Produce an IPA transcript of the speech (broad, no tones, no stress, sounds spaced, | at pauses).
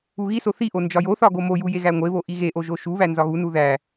u ɣ i s o θ i ʔ o n d͡ʒ ɒ j o θ ɒ ɡ o m o j u j e ɣ æ ŋʷ e β o ʔ i ɣ e ʔ o ʒ o ʃ u β æ n z ɒ ɣ u n u ð æ